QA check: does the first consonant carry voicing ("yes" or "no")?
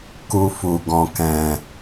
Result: no